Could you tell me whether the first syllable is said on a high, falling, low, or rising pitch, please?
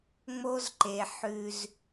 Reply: high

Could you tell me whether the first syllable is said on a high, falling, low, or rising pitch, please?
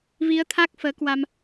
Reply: rising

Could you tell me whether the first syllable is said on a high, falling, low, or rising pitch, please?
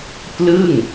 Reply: falling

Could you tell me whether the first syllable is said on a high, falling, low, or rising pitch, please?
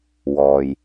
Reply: low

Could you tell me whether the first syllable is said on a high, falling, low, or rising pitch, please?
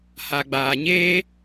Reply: low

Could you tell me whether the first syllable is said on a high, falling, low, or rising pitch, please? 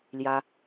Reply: high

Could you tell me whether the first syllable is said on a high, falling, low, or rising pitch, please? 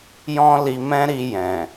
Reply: high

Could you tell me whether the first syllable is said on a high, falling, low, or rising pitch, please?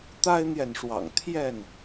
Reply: high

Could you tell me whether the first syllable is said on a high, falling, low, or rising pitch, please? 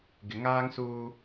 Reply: low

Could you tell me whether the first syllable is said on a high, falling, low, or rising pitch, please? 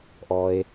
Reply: low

